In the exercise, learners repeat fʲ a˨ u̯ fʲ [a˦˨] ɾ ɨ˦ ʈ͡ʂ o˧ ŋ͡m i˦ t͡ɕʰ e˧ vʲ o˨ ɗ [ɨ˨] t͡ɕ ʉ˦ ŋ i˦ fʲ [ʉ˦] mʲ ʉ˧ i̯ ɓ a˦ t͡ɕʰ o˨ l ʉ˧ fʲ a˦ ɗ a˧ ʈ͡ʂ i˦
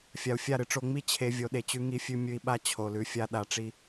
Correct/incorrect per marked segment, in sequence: correct, incorrect: e˨, correct

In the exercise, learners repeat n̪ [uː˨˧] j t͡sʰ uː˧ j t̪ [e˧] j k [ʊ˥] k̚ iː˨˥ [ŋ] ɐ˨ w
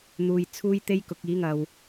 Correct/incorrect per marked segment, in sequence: incorrect: uː˨, incorrect: e˥, incorrect: ʊ˨˥, correct

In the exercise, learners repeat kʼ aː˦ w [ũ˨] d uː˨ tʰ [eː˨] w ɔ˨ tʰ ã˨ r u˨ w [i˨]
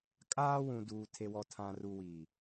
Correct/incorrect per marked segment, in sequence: correct, incorrect: e˨, correct

